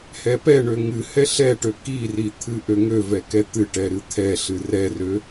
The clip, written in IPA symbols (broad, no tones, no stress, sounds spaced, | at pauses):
h ɛ p ɛ ɳ ø ŋ ɨ h ɛ ɬ ɛ ʈ ø k i r i t̪ʰ ɨ ʔ ø ŋ ø v ɛ k ɛ t̪ ɨ ʈ ɛ ɾ ɨ t̪ʰ ɛ ɬ ɨ r ɛ r ø